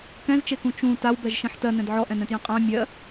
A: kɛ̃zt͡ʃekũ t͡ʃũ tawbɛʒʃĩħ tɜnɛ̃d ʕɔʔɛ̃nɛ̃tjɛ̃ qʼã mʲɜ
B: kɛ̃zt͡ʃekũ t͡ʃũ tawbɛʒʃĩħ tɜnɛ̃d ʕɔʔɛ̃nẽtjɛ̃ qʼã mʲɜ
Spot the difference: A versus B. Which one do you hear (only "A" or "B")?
A